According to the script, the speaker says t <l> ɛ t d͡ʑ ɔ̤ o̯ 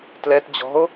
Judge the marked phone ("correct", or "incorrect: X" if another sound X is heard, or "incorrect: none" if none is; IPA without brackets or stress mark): correct